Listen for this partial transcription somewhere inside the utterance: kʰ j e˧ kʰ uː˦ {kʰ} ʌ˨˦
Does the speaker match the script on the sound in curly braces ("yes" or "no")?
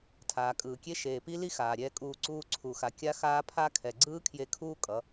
no